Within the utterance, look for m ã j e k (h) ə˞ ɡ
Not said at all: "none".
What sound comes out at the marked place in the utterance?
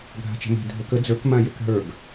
ɦ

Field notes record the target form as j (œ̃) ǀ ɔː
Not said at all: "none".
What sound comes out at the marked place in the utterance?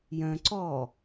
œ̃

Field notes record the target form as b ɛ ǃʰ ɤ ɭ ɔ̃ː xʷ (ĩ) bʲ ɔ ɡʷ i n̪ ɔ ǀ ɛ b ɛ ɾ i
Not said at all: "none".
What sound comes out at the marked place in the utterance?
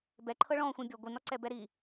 ĩ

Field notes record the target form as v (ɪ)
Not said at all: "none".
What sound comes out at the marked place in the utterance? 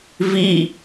i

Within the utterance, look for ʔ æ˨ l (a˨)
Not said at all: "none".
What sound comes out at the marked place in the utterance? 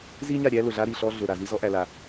a˨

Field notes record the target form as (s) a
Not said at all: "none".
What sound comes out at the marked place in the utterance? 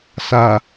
s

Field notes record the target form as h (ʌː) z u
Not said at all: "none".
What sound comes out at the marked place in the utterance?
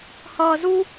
ʌː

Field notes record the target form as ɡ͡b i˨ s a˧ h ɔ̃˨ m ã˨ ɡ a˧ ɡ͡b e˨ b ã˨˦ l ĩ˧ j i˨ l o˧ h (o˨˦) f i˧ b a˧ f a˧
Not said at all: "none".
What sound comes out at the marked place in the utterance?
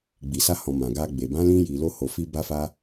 o˨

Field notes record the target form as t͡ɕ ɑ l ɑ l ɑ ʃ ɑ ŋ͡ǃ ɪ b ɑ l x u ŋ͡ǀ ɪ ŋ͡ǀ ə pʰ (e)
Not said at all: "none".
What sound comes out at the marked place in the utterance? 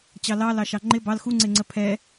ɛ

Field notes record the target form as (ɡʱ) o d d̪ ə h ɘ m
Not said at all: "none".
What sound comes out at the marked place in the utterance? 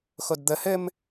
x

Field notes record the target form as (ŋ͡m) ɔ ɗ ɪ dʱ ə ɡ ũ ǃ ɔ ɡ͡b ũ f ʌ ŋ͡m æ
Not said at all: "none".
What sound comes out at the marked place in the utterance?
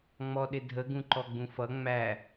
ŋ͡m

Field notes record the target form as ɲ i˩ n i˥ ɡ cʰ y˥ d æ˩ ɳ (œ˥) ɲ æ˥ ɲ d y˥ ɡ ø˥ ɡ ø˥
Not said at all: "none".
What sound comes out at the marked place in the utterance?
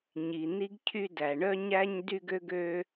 œ˥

